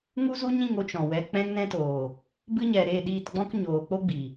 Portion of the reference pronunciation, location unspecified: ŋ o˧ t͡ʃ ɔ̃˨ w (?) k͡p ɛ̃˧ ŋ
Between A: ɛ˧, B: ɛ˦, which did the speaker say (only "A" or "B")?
A